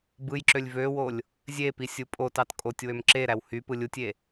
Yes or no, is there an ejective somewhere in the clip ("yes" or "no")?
yes